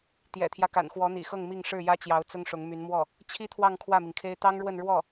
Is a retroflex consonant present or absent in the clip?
present